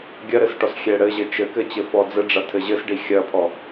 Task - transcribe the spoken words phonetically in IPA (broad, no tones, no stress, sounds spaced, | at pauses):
ɡʲ ɐ ɾ ɘ s ʈ ɔ s xʲ ɛ ɽ ɘ ʑ ɘ t͡ʃ ɘ k ɘ t͡ɕ ɘ f ɔ d͡z ɘ ɖ͡ʐ ɐ tʰ ɘ ʑ ɘ s ɖ i xʲ ɐ pʰ ɔ